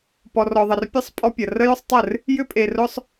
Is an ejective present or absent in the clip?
present